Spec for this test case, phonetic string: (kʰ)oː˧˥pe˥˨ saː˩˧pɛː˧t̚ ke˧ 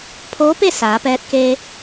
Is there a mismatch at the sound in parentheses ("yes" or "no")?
yes